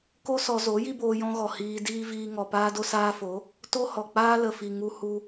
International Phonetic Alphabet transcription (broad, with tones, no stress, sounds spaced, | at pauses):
k o˦ s ɔ˧ z o˨˦ j i˦ b oː˧ j ɔ̃˧ ɣ ɔ˨ h iː˧ d iː˦ v iː˧ ŋ ɔ˨ p aː˦ d o˧ s aː˧ f o˨˦ | t o˦ h ɔ˨ k͡p aː˦ l ə˨ f i˨ ŋ u˧ h u˧